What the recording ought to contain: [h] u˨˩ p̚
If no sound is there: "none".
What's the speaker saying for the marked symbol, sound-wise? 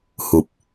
h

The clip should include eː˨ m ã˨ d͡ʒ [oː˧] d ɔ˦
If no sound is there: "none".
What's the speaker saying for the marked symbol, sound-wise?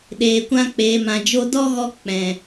o˧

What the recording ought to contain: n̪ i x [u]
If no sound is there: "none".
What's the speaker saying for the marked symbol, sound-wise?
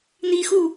u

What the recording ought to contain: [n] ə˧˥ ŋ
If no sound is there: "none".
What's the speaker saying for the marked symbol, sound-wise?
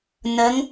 n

